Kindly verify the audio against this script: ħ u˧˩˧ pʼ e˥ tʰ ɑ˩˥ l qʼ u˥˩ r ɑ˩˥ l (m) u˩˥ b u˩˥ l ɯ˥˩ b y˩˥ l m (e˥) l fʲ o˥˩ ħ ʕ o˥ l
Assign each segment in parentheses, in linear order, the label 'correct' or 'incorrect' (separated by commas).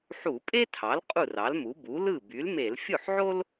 correct, incorrect